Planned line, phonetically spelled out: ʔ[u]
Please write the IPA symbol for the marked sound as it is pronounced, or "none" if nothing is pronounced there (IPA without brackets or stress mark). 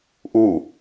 u